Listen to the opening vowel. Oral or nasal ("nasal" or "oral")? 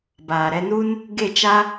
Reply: oral